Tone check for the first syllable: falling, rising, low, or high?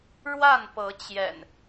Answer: falling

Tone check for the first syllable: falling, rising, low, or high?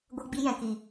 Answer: high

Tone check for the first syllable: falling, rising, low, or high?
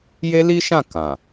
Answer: high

